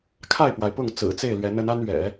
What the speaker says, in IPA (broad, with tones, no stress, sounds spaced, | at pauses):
kʰ a˥˩ ɪ̯ p w a˩ ɪ̯ p ʊ˥˩ ŋ t͡s ɹ̩˨˩ t͡s e˥˩ ɪ̯ l ɥ ɛ˧˥ n ə˧˥ n a˥ n ɥ ɛ̰˨˩˦